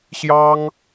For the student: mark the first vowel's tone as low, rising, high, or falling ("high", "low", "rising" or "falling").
high